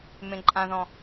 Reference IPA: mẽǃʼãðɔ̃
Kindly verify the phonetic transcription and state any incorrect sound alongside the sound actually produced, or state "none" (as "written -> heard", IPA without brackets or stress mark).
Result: none